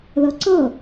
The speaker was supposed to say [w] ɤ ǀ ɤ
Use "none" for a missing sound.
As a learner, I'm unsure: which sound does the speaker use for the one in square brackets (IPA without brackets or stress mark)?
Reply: ð